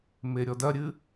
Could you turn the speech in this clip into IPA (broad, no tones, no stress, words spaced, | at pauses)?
meɾʲɔdɐɾʲɨ